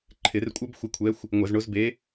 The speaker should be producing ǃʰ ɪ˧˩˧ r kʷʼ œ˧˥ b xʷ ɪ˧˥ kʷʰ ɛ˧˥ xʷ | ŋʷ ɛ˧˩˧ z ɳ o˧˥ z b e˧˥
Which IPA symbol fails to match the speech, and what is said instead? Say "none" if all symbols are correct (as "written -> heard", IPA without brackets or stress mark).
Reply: none